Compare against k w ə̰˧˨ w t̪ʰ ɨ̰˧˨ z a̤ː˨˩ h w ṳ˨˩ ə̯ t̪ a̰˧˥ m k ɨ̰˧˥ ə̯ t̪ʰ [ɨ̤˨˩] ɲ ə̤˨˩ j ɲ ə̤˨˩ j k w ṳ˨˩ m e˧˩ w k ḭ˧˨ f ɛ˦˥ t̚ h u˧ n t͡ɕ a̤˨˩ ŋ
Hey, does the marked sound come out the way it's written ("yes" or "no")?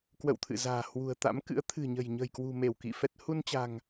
yes